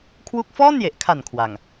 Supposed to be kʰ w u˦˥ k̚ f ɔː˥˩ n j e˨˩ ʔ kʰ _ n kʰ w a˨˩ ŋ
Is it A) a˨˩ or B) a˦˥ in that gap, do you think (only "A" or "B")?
A